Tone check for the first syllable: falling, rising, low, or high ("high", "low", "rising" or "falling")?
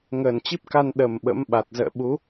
low